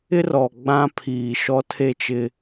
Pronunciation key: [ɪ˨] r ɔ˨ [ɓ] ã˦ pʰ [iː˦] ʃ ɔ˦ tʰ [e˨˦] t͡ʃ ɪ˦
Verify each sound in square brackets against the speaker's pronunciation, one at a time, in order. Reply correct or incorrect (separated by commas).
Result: incorrect, incorrect, incorrect, incorrect